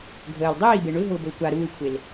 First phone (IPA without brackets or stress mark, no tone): ɡʱ